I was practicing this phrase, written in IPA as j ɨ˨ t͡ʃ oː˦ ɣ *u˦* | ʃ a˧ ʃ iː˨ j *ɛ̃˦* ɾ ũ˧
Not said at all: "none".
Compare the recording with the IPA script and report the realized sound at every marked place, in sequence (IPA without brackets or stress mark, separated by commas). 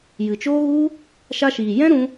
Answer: u˦, ɛ̃˦